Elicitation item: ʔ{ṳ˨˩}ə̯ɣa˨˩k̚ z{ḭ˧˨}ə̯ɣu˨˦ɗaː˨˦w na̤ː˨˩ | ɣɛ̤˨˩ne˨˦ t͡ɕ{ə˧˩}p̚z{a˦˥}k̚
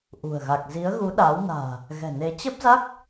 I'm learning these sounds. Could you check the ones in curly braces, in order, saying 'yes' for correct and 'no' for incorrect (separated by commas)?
yes, no, no, yes